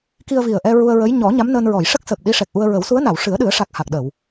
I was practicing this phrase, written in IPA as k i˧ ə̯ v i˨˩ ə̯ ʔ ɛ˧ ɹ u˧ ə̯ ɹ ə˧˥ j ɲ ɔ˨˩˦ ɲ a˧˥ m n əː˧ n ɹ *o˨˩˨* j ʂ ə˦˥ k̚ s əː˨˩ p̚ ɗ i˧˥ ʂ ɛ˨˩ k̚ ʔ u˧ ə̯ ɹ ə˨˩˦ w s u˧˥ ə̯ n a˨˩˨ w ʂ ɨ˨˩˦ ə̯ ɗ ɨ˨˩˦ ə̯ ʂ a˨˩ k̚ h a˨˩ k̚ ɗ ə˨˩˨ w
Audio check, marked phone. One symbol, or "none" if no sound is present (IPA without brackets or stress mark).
ɔ˨˩˨